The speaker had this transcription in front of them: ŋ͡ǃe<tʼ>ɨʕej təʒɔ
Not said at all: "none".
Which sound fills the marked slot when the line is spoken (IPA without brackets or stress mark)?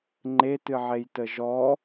t